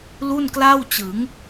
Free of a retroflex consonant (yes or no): yes